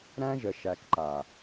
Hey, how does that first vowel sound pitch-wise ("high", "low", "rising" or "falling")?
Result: high